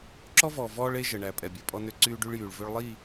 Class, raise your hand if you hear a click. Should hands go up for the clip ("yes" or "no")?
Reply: yes